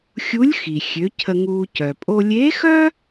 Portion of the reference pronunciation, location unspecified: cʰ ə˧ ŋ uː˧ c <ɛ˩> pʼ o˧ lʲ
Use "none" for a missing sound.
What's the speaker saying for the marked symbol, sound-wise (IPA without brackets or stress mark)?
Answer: œ˩